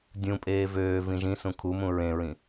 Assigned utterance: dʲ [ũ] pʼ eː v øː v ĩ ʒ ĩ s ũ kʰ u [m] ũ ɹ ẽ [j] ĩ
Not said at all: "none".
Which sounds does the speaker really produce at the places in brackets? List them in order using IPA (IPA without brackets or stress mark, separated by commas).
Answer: ũ, m, ɹ